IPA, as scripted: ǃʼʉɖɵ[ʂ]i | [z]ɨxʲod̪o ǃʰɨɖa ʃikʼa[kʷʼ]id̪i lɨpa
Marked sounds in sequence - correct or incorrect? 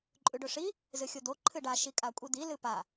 correct, correct, correct

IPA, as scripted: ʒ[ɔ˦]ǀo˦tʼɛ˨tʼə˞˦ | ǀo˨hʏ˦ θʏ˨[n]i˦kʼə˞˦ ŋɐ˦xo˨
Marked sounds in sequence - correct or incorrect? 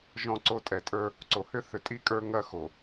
incorrect: ɔ̃˦, incorrect: tʼ

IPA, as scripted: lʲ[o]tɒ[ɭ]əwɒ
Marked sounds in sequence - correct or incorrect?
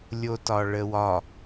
correct, correct

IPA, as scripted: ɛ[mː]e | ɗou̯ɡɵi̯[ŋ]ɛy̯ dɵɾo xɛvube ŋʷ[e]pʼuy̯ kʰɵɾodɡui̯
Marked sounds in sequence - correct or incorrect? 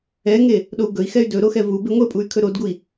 incorrect: ŋ, incorrect: x, correct

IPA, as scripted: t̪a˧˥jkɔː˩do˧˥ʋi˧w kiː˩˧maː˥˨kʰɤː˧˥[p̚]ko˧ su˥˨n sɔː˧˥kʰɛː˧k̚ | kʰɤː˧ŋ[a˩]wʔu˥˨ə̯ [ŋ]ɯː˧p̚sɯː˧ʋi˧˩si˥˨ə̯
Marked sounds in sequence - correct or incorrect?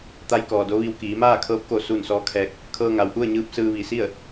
correct, correct, incorrect: ɲ

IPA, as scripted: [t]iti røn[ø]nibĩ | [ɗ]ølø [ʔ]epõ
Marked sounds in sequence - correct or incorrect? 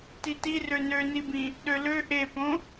correct, correct, correct, correct

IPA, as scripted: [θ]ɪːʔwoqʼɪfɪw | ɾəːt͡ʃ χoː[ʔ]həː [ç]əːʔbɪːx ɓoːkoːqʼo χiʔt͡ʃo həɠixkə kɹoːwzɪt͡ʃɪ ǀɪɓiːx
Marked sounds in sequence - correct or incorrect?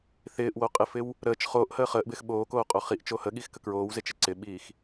correct, correct, incorrect: χ

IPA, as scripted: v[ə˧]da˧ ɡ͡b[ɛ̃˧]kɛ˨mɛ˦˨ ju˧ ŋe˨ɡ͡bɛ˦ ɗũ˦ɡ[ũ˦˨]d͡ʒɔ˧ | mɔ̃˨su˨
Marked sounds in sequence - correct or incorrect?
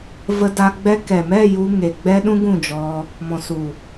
correct, incorrect: ɛ˧, correct

